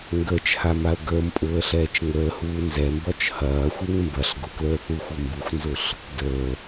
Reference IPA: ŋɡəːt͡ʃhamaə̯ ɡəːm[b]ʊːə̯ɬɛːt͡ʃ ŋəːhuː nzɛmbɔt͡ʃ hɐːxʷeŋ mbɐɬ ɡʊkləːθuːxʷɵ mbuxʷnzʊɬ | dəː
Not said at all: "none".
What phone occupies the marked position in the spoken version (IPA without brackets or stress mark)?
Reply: pʼ